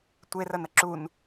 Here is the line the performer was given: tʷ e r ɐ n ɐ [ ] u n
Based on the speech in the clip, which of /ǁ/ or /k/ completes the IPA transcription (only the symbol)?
ǁ